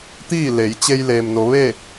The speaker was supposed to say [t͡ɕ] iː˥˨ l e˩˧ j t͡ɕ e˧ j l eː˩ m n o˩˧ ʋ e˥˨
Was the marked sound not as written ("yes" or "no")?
yes